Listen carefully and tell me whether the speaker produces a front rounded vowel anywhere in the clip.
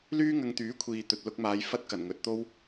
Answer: yes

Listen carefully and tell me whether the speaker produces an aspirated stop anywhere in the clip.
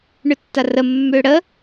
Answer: no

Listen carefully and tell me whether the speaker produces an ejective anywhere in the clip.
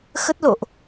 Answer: no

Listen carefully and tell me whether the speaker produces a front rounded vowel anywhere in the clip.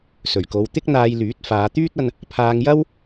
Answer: yes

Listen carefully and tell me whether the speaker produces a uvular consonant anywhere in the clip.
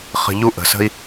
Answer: yes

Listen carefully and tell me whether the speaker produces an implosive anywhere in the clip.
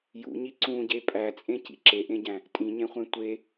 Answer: no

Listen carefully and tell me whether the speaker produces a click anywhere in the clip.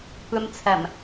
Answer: no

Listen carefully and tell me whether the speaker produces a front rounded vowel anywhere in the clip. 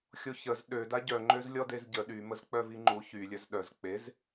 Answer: yes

